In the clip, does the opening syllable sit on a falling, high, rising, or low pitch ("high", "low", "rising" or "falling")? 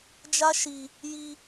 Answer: high